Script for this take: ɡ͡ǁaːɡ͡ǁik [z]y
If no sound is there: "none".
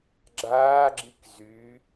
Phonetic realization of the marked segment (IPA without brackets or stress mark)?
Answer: z